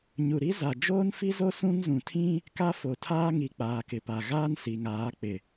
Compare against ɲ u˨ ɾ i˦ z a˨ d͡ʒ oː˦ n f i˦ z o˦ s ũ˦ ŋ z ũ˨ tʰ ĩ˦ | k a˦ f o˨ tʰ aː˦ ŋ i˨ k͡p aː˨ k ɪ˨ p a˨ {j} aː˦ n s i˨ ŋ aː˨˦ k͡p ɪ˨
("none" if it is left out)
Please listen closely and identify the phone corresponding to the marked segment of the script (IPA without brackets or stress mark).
ɣ